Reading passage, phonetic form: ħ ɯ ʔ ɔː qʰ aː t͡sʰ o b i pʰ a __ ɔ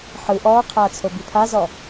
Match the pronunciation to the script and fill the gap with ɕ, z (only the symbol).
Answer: z